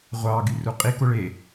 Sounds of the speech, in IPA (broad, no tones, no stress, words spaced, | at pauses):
ʁʷɑɡy ruqʼi koɭe